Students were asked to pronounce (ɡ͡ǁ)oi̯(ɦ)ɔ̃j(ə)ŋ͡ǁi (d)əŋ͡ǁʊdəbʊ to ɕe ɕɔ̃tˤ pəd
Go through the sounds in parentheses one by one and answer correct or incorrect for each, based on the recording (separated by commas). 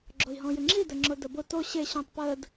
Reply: correct, correct, incorrect, correct